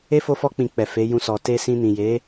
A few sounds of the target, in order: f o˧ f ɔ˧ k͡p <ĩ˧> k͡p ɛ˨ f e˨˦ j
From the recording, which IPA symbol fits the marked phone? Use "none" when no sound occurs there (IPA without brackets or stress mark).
ĩ˨